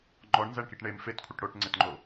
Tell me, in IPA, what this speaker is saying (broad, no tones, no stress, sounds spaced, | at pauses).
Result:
ŋ͡ǃ ɔ ɳ n z æ ɳ k i ʈ ɳ e m f e t kʷʰ ə ʈ ɽ o ʈ ŋ͡ǀ e t ŋ͡ǃ o